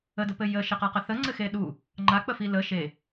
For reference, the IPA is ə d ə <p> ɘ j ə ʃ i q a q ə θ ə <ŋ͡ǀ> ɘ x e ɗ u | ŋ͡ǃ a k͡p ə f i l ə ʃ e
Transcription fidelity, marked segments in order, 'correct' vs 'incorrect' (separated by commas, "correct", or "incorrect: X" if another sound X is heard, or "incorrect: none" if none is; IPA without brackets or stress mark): correct, correct